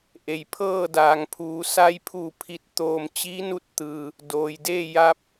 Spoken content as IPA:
ʔe˩j pʰɤː˥˨daː˩ŋ pʰuː˩˧ sa˧jpʰuː˧˩ pʰi˧˩t̚t̪oː˧˩m t͡ɕi˧˥nu˧t̚ t̪ɯː˩ | doː˩jdeː˥˨ ja˧p̚

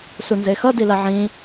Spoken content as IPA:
sunzexʌ dilaʕĩ

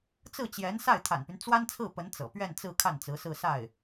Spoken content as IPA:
t͡sɹ̩˥˩t͡ɕjɛ˧˥n sa˥˩ɪ̯t̪ʰa̰˨˩npy˦n t͡swa˥nt͡sʰɹ̩˥˩pə˧˥n t͡sɤ̰˨˩ pɥɛ˥˧nt͡sɹ̩˥˧ kʰa˥˩n t͡sɹ̩˧˥sɹ̩˥˧sa˥˩ɪ̯

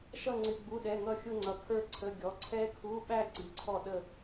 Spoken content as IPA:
ʃʌ˥˧ŋ͡ǀɪ˧˥˧ɡ͡bu˧˥˧ ɗɛ˧˥˧ŋʌ˥˧ xʲʊ˥˧ŋ͡ǀʌ˨˥kʰə˞˥˧ǀʰə˧˥˧ ɡʲɔ˨˥ ǀʰɛ˦˥kʰu˧˥˧ɓæ˥˧ ǀi˨˥ǀʰɔ˥˧ɗə˥˧

